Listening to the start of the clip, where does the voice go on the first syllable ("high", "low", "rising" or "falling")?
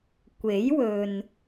rising